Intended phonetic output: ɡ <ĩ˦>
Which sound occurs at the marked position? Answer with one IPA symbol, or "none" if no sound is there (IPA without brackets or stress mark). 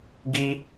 i˦